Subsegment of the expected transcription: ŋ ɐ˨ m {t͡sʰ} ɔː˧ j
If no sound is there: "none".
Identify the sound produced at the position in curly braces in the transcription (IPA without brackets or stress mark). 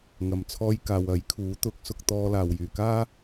t͡sʰ